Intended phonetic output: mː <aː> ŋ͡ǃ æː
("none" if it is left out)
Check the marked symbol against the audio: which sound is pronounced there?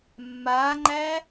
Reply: aː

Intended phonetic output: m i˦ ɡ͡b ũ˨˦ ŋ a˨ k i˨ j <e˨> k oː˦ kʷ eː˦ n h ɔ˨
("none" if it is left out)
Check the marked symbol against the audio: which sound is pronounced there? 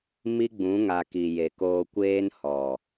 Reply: e˨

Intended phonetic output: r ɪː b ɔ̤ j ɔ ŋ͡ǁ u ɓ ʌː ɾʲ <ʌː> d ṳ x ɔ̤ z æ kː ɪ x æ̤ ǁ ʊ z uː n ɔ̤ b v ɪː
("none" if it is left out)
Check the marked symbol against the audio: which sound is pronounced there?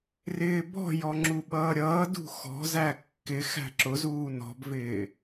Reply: ʌː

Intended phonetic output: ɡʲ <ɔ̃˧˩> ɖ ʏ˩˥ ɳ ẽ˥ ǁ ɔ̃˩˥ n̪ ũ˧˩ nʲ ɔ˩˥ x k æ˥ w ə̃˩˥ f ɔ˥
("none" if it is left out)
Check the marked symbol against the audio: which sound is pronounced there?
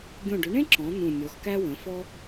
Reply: õ˧˩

